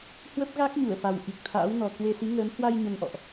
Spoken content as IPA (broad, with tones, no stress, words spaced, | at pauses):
hwə˦˥p̚ɣa˦˥k̚ɲu˧˩ə̯fa˨˩w ʔi˨˩k̚t̪ʰa̰ː˧˥wnɔ˨˩ kwe˧si˨˦ŋəː˨˦m hwa˧j ɲə˧nʔɔ̰˧˨ʔ